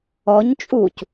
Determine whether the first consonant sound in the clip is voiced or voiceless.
voiced